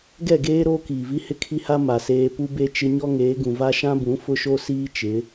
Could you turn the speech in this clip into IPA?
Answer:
ɡ ɛ˦˨ ɡ eː˦ ɾ oː˦ k iː˨ v i˦ h ɪ˦ kʰ i˦ h a˦ m a˨ s eː˦ p u˦ b e˦ t͡ʃ ɪ˦ ɲ ɔ˦ ŋ eː˨˦ ɡ ũ˨ v a˦ ʃ ã˦ b ũ˨˦ f ʊ˦ ʃ o˦ s iː˦ t͡ʃ ɪ˨˦

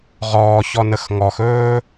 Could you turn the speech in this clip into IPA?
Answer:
ʁ ɔː ç ɔ n ə x ŋ ɔ x ɵː

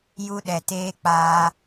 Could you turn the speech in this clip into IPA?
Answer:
j u˦ ɗ ɛ˨ t eː˦ k͡p aː˦

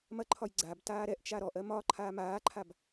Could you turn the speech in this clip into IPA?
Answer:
m ɐ ǃʰ ɒ j ɡ͡ǀ a b t aː ɾ ɛ ʔ t͡ʃ a ɾ ɔ ʔ ɜ m ɒ ǃʰ aː m aː ǃʰ a b

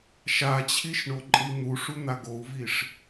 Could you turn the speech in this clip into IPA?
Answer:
ʃ a t͡ɕʰ i ʃ ɳ o ǃʼ i n̪ u ʂ u n̪ a ɡ o u̯ v i ʂ

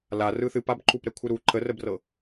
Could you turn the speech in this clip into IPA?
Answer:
l a r ɯ θ ɨ p a b ǃ u p ɾ ɛ kʷʰ ɯ ɾ u ǃ ə r ə b r ɤ

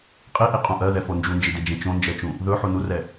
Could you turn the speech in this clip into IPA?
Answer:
qʼ i ʔ i qʼ ũ ʔ ɜ ð ɛ f o n d͡ʒ u n d͡ʒ i d e d͡ʒ ẽ t͡ʃ õ n d͡ʒ ɜ t͡ʃ ũ | ð ɵ ħ u n u r ɛ

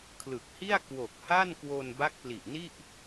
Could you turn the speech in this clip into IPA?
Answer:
kʰ l ɯ˨˩ k̚ h i˥˩ a̯ k w o˨˩ k̚ h a˥˩ n k w o˧ n b a˦˥ k̚ p l i˨˩ ʔ n i˥˩ ʔ

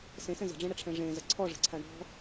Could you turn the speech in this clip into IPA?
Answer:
s ẽ s ɛ̃ z ə̤ ɖ͡ʐ ẽ ɽ ə ʈ͡ʂʰ ɛ̃ ʐ ẽ z ə ǀʰ ɔ ʐ ə̤ ǀʰ a ɳ ɔ̤

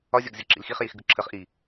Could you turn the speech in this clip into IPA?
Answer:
ɒ zʲ ɒ ɡ zʲ ɒ ǁ ḭ l x i χ j i x ɡ ɯ ǁʰ ə χ ʔ i

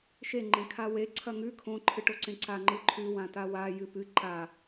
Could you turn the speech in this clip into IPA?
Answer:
ʃ e ŋ͡ǃ ẽ kʰ a w e ǀʰ ɐ ŋ ʉ kʰ õ ǃʰ ɨ ʈ o ǀ ẽ ǀ a ŋ͡ǃ ɨ ǃʰ ʉ w ã t a w a j ɨ p ɨ ǃ a

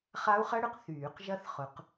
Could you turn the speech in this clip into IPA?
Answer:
χ a˦˥ u̯ χ ɐ˦˥ ɽ ʏ˨ q θ yː˨˩˦ q ʒ ɐ˦˥ θ χ ʊ˨˩˦ q

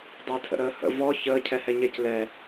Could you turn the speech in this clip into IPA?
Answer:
dˤ əː tʰ ə̰ ɾ əː h ə̰ v ɔ ç əː cʰ ɛ h ɛ ɲ ɛ c l ɛ

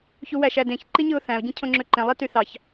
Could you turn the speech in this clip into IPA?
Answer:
ç u w æ ʃ æ d ẽ ç ǃ i ɲ ɯ ʊ̯ θ æ̃ ʊ̯ ɟ ẽ cʰ õ ŋ͡ǁ ø ǃ ẽ lˠ e t y θ ɑ ç

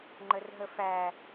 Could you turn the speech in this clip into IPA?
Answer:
ŋ͡ǃ ə r ɦ ə f æ

